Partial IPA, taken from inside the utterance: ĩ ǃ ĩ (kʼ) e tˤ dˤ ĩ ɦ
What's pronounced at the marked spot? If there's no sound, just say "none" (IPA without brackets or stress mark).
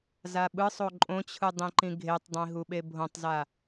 ɡʱ